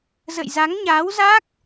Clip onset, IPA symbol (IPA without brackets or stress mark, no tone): z